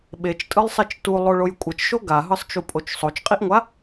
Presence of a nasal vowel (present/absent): absent